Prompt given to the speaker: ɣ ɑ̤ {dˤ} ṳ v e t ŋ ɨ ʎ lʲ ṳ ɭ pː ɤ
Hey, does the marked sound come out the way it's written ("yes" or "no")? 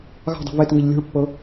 yes